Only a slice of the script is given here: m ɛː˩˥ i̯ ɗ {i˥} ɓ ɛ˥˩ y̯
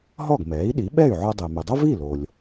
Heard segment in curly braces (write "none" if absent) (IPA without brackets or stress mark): i˩˥